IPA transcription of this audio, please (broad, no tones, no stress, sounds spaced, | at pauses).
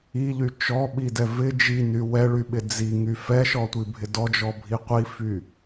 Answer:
i ʎ y t͡ʃ ɔ ɓ i d ɛ v ɪ d͡ʒ i n y w ɛ ɭ y ɓ ɪ d͡z i ŋ y f ɛ ʃ ɔ tʷ i bʱ ɪ d ɔ d͡ʒ ɔ bʱ i qʷ i f y